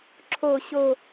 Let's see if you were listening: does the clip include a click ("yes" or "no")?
yes